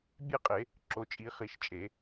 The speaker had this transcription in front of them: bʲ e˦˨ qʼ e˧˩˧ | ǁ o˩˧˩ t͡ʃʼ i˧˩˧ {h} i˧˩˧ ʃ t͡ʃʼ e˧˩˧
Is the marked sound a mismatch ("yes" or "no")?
yes